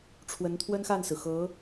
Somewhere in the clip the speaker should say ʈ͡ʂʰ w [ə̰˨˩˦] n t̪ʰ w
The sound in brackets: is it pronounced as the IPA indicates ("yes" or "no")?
no